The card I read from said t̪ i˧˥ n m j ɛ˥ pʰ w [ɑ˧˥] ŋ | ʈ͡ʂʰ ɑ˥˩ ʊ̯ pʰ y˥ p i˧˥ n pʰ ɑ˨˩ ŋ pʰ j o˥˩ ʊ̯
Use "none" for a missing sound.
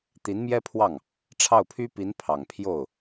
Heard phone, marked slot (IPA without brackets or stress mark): ɑ˥˩